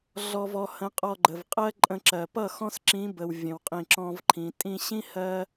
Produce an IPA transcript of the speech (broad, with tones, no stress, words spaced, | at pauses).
ɮɔ˧v ɔ˧hə̃˨˦qʼɔ˧ɡ͡ǃə˨v qʼɜ˦ǃʼə̃˧ǁɜ˨ pʌ˦˨ xɔ̃˦sǁĩ˨˦bə˨w vʲə̃˨wqʼĩ˨ǁɔ̃˧v ǃʰĩ˨ tʼĩ˧ɕĩ˦ hɜ˦